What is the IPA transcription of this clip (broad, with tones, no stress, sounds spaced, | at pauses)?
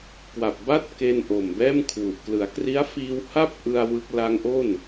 k w a˨˩ p̚ b a˥˩ t̚ k e˧ n ʔ o˨˩ m b ɛː˥˩ m kʰ w u˨˩ ʔ k l ɯ˩˦ a̯ k r i˦˥ a̯ f iː˧ w h a˥˩ p̚ ʔ ɯ˧ a̯ w ɯ˦˥ k̚ l a˦˥ ŋ ʔ o˥˩ n